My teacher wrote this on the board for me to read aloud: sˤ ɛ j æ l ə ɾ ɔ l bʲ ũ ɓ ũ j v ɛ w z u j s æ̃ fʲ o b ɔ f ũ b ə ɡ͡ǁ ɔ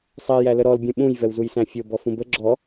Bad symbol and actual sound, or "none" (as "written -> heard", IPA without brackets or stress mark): none